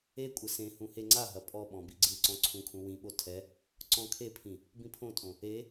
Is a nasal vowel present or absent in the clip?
present